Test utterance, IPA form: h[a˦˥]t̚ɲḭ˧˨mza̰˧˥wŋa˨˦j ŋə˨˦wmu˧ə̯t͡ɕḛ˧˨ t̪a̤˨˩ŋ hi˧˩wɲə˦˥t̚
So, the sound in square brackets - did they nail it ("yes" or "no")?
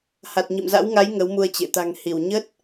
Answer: no